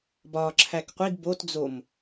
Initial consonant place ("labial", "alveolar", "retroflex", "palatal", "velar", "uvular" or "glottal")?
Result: labial